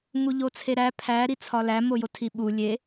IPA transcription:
ŋ u ʎ o t͡sʰ e ɾ æ pʰ æ ɾ i t͡sʰ ɒ l æ m o j o tʰ i ɓ u lʲ e

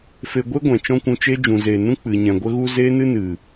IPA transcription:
f e˧ ɡʷ e˦ ɡʷ ɛ̃˨ t͡ʃ ɔ̃˦ kʷ ũ˧ t͡ʃ e˦ d͡ʒ ũ˨ z eː˨ n ũ˦ k͡p ɨ˨ ɲ ɛ̃˨ ɡʷ ə˦ ɣ u˦ z eː˦ n ɨ˦ n ɨ˨

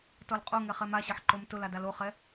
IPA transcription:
t ɔ l qʼ o ŋ ɛ χ ɛ m a ɕ ɐ ħ ǃ o m t ʊ l a d a l o χ ɛ

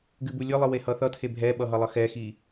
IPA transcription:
ɡ ɨ b u lʲ ɨ lˠ ɨ w e h ʌ θ ʌ tʰ e bʱ ɛ ɓ ʌ ɦ ʌ lˠ ʌ x ɛ x i

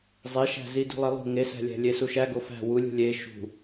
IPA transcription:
zˤ e ʃ æ̤ z i d ṳ lˠ e lˠ ṳ ŋ e s æ̤ lʲ æ̤ lʲ e s u ʃ æ ɡ o f æ̤ w u lʲ ṳ lʲ e ʃ ṳ

